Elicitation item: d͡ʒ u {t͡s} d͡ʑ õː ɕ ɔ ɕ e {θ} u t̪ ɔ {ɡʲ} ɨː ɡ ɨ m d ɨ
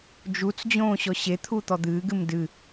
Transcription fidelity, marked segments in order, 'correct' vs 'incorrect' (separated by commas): correct, incorrect, incorrect